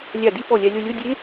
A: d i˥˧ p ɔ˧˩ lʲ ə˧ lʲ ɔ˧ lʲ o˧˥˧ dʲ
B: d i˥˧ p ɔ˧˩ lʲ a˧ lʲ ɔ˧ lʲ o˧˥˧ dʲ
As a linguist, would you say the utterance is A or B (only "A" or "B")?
B